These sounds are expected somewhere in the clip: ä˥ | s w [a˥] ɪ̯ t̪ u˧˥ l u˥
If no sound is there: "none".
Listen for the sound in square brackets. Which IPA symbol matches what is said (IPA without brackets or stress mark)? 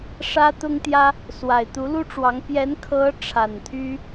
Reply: a˨˩